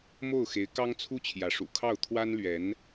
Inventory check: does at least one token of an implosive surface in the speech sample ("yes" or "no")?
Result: no